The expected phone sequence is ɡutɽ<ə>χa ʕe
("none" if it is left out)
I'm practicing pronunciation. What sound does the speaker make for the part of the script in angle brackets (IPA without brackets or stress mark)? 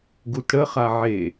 ə